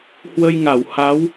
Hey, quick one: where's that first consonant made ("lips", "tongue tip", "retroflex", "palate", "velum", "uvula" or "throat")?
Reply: throat